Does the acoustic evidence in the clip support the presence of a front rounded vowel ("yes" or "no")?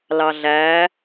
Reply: no